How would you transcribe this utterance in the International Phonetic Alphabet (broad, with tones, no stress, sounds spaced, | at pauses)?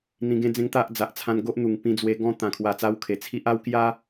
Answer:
n̪ ĩ˧ ɡ ẽ˦ d͡z ẽ˦ ŋ t̪ a˦ ʔ d͡z a˨ ʔ t͡sʰ ã˧ n ɡ o˦ ʔ n̪ u˨˩ ŋ p ĩ˧ d͡z w e˧ ɡ ɔ̃˦ t̪ ã˨˩ kʰ w a˨˩ t͡s a˧ w kʰ e˨˩ t͡sʰ i˦ ʔ a˦ w k j a˦